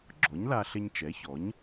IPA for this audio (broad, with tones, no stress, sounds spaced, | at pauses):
ɡ͡ǁ ɔ˩˥ ɲ l a˧ ɬ ɪ˧ ɲ t͡ʃ ɛ˩˥ ç ɔ˩˥ ɲ